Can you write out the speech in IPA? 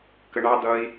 k ə ɳ ɑ d̪ ʌ i̯

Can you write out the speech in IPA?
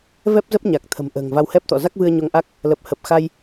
v ɛ˦˥ p̚ z ə˦˥ p̚ ɲ a˨˩ k̚ t̪ʰ ə̤˨˩ m ʔ ə̤ː˨˩ ŋ v a˧ w h ɛ˦˥ p̚ t̪ ɔ̰˧˨ z a˦˥ k̚ v ɨ˧ ə̯ ɲ o˧ ŋ ʔ a˦˥ k̚ | l ə˨˩ p̚ h ə˨˩ p̚ x a˧ j

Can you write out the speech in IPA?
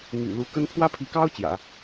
n̪ y̰˨˩ l u˧˥ k ə˥ n pʰ w ä˥ pʰ i˧˥ k ɑ˥ ʊ̯ t͡ɕ j ä̰˨˩˦

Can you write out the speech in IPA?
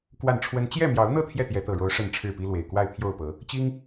k w a˥˨ n ʈ͡ʂʰ w ə˦ n t͡ɕ j ɛ˥˨ m j ɑ˨˦ ʊ̯ n̪ ɤ˥˨ t̪ʰ j ɛ˥˨ t̪ j ɛ˨˦ t̪ ɤ˨˩ ɻ o˨˦ ʊ̯ ʂ ə˥˨ n ʈ͡ʂʰ ɻ̩˥˨ p i˦ l w e˨˩ ɪ̯ k w a˥˨ ɪ̯ pʰ j o˥˨ ʊ̯ p ɤ˨˦ | t͡ɕ i˦ ŋ

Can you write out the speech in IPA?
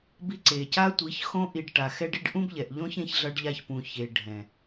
b i˧ ǀ e˨ c a˦ tʷ i˨˦ ç x õ˧ ʔ i˨ ɖ ʈ a˨ x ɛ˦ ɖ i˦ ɖ ʔ ũ˦ b ʎ ɛ˨ ʔ ʎ õ˦ ç ẽ˧ ç ɮ ʌ˧ ɖ ʎ a˧ ç p ũ˨ ç e˨ ɖʱ ɛ̃˨

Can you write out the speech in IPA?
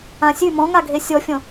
ã sʲ ʉ m ɔ̃ ŋ a ɡʱ e sʲ ɔ fʲ ɔ̃

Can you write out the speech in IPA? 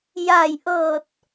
j a˧˩ j ʔ ɤː˧˩ t̚

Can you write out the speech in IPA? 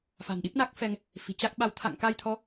f a̤˨˩ n ɗ i˦˥ p̚ n a˦˥ k̚ f ɛ˧ ŋ | f i̤˨˩ t͡ɕ a˦˥ k̚ ɓ a˧ w t̪ʰ a̰˧˨ ŋ k a˧ j t̪ʰ ɔ˨˦

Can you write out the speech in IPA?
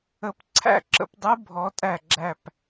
ə˨˦ p ǀʰ æ̰˥˨ ǁ ə̰˨˦ p dˤ ɯ˦˥ bʱ ɔ˨˦ tʼ æ˧˩ ɡ͡ǁ æ˧˩ p

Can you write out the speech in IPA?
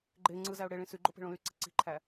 ɡ͡ǃ e ŋ͡ǀ ɯ z æ ʊ̯ ɽ e ɭ ĩ s y ɡ͡ǃ o p e̤ ɭ õ l y ǀ e̤ ǀ i̤ ǃʰ æ

